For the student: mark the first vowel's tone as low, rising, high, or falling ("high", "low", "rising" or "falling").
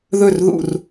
falling